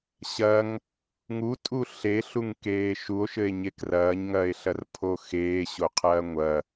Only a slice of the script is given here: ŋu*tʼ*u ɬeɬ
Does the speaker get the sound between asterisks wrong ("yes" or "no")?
no